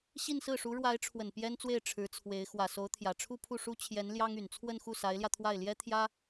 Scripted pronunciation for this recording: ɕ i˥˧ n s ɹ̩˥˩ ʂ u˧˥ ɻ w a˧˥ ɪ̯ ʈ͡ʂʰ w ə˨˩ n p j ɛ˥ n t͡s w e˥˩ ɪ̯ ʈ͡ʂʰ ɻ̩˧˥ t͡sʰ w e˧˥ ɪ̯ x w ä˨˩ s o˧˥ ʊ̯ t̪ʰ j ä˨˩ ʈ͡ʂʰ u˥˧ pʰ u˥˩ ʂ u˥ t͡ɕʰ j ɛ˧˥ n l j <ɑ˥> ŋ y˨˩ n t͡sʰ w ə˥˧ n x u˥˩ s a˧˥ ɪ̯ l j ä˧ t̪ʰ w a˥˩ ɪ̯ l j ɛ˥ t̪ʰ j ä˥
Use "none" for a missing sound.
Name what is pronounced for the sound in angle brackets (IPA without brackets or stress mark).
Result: ɑ˥